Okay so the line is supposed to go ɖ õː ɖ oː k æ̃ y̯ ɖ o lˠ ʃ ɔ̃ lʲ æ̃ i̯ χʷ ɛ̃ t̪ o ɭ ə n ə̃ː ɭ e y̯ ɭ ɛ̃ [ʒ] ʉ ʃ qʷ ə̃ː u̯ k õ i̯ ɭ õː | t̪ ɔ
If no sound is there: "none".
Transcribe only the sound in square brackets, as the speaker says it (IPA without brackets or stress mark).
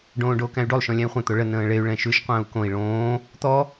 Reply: ʃ